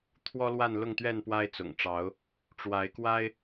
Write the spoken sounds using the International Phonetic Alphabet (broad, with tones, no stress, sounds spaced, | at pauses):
t̪ʰ w ɔ˦ l w a˥˨ n l ʊ˥˨ ŋ t̪ ɥ ɛ˥˨ n p w a˦ ɪ̯ t͡s ʊ̰˨˩ ŋ ʈ͡ʂ ɑ˨˦ ʊ̯ | ʈ͡ʂ w a˨˦ ɪ̯ k w a˦ ɪ̯